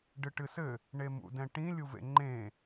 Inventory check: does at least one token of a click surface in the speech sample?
yes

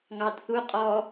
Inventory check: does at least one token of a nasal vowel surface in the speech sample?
no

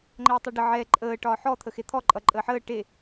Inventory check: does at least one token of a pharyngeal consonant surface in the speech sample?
yes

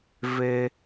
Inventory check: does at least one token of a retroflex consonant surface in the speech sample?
no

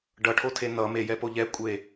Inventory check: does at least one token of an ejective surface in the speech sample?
yes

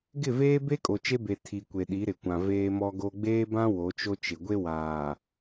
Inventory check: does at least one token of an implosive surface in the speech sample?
yes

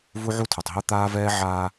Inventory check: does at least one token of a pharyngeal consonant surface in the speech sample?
yes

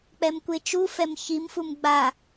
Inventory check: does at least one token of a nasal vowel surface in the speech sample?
no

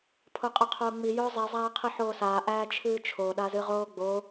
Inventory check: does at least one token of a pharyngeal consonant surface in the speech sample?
yes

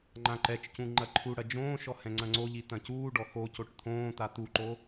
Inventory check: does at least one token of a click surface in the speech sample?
yes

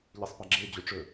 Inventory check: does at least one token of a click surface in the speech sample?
yes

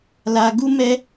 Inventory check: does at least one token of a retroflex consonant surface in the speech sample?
no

